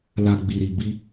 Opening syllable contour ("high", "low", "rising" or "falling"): low